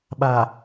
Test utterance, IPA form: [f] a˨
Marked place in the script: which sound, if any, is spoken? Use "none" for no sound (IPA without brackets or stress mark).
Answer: ɓ